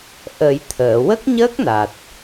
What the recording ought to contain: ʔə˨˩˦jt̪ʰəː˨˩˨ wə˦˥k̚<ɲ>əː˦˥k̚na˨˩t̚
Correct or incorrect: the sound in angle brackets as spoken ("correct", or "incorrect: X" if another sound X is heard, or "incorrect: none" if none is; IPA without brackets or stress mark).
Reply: correct